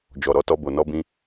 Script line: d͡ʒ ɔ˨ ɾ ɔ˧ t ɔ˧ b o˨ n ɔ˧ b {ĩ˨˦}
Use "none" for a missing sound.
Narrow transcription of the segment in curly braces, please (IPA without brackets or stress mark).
ĩ˧